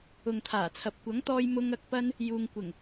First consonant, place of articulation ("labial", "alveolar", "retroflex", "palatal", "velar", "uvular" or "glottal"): velar